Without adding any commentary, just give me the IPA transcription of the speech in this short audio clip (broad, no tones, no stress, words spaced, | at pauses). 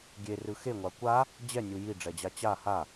ɡʲerɯ xeŋʷa kʷa | d͡ʑɛnʲu jiɖ͡ʐɛd͡ʑa t͡ɕa ha